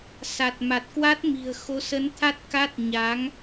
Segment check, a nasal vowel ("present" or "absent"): absent